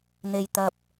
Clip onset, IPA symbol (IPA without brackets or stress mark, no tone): n̪